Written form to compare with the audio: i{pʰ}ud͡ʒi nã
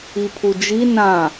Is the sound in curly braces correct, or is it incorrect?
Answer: correct